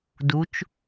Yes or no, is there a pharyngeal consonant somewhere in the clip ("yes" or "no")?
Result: no